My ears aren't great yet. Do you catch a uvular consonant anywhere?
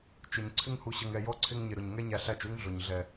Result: no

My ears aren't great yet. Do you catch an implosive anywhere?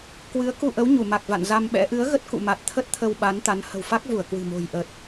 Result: yes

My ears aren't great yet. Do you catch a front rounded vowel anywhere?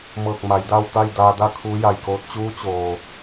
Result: no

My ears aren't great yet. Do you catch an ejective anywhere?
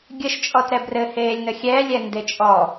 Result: yes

